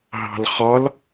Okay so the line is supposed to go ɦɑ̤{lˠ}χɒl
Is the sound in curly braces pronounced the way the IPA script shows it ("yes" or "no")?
no